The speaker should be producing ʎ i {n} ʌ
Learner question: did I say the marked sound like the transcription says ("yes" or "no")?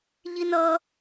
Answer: yes